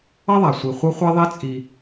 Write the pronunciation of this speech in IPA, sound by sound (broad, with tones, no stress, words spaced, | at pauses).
ʌ˦ðˤa˩ sʷi˨ χʷʌ˦χʷɛ˦ðˤe˦ t͡sʼi˨